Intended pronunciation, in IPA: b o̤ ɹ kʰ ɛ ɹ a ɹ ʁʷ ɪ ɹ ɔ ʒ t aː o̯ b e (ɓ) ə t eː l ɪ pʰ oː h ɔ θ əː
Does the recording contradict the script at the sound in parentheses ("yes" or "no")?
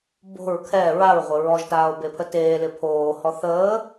yes